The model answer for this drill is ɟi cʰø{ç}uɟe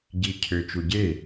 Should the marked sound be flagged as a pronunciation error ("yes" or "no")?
yes